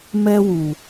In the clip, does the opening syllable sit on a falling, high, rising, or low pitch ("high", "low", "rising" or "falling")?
high